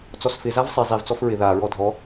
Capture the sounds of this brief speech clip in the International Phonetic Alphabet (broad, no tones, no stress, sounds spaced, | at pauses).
t͡s ɔ s f ɪ z a v sˤ i zˤ i v t͡s ɔ f ɹ ɪ ð a ɹ ɔ dʱ ɔ